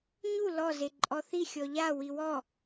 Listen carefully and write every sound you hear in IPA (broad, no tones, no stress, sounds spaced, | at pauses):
ɲ u l ɔ z e ǃʼ ɔ θ i xʲ ɔ ʎ a w i w ɔ